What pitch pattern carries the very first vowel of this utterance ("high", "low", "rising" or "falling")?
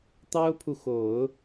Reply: high